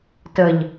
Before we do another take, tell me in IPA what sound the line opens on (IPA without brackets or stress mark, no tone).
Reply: t